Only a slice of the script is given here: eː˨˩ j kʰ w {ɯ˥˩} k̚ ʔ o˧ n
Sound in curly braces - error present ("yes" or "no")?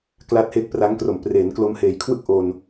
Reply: no